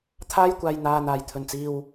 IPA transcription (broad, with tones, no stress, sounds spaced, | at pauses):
t̪ʰ aː˥ j kʷ aː˨ j n̪ aː˨ n̪ aː˨˩ j t̪ʰ ɵ˨˩ n t͡s iː˨ w